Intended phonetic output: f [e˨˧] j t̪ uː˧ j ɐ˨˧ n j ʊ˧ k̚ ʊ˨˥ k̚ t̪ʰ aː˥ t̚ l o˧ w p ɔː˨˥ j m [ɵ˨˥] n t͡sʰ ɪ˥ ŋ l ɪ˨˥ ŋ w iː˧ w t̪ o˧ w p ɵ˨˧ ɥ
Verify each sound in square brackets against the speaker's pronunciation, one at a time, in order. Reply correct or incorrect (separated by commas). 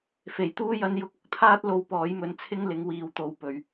incorrect, correct